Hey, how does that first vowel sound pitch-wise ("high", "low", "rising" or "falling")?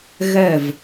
falling